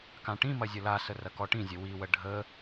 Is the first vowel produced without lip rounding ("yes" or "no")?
yes